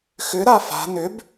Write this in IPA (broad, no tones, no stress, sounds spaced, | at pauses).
x ʏ ɾ a f a̤ n ʏ b